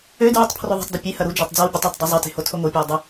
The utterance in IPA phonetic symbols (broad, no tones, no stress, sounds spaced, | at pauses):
ø d ɹ u tˤ pʰ r o ðˤ e̤ tˤ d ɯ pʲ e h ɐ ɾ u d͡ʒ a tˤ d͡z a w bʲ ə tˤ ø tˤ dˤ ɯ zˤ ɐ t e̤ h o tʰ o ŋ o pʲ o w dˤ ə